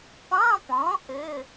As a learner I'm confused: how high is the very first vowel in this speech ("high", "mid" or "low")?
low